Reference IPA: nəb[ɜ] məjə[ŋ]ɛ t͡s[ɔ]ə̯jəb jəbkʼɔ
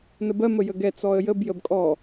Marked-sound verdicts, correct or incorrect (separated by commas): correct, incorrect, correct